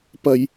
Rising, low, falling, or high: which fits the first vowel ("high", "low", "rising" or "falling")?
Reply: low